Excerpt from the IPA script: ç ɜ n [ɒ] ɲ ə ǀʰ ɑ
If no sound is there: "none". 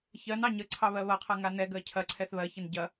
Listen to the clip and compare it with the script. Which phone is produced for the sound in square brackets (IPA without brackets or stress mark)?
ɑ